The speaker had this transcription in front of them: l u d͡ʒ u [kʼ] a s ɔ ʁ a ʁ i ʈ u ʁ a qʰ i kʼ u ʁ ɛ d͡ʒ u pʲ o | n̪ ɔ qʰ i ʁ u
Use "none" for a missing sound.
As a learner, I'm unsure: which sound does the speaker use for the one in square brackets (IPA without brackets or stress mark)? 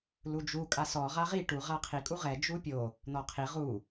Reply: kʼ